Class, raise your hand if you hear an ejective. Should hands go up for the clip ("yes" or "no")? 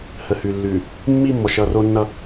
no